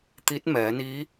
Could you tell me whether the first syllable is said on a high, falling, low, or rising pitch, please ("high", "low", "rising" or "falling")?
rising